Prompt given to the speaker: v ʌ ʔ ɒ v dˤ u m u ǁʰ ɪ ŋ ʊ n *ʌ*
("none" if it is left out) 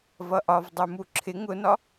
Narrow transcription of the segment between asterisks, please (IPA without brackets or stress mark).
ɒ